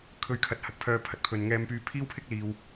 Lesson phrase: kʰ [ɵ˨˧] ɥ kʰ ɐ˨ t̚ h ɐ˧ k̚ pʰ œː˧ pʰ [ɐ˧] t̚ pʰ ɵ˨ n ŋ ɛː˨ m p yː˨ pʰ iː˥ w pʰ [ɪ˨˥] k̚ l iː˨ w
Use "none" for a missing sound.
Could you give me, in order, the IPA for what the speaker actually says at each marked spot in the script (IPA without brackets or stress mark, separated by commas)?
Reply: ɵ˨˧, ɐ˨˥, ɪ˥